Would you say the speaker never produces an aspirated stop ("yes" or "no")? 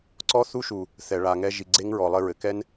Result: yes